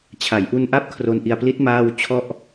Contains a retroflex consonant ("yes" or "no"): no